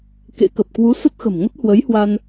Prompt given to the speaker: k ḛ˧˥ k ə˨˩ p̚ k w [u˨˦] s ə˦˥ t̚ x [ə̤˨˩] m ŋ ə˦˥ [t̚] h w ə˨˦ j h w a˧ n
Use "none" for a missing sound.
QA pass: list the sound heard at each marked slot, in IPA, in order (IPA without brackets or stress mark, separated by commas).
u˨˦, ə̤˨˩, t̚